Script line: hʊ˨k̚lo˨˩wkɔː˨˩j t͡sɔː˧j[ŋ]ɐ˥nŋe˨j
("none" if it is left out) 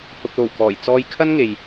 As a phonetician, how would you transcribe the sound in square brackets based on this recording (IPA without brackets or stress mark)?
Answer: kʰ